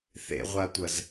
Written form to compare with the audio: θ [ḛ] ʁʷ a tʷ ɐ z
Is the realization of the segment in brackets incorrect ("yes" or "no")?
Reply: no